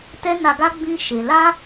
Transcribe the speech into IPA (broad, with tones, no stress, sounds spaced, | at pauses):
t ɛ˦ n a˧ ɡ a˦ ɡ͡b ĩ˦ ʃ e˧ l a˦